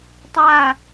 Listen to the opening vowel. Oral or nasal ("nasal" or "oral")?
oral